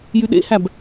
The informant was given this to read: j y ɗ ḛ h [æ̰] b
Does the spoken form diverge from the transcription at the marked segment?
yes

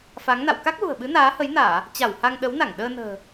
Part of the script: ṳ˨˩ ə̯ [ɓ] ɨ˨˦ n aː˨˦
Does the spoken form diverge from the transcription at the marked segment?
no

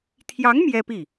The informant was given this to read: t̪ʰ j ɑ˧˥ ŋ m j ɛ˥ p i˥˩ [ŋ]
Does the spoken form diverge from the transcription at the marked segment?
yes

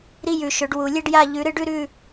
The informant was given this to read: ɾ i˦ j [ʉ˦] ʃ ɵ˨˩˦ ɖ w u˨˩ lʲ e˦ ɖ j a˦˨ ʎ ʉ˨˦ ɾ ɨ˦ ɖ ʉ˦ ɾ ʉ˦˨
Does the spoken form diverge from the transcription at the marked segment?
yes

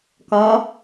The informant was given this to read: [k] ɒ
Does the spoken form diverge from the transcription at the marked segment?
no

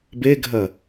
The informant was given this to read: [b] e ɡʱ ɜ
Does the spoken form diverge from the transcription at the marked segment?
no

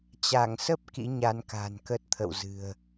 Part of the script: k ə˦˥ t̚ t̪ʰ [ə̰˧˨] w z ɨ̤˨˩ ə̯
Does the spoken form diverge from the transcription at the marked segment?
no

